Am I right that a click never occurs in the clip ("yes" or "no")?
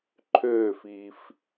no